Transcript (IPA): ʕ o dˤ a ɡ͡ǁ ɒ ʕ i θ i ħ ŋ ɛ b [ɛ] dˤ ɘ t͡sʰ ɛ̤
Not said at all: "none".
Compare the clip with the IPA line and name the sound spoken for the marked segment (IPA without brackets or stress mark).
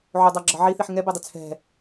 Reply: ɛ